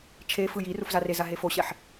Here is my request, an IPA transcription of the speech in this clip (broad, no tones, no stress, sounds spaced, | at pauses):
t͡ʃʰ e f ɯ j i r u f z a r e z a ɦ e f o ɕ ɛ ħ